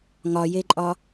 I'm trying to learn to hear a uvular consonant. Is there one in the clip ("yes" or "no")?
no